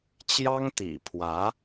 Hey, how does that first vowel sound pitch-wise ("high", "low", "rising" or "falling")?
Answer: high